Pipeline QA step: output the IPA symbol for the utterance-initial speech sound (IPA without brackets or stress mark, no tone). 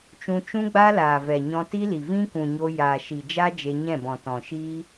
t͡ʃ